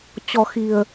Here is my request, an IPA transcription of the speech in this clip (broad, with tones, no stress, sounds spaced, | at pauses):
t͡ɕ ɔ̤˨˩ x i̤˨˩ ə̯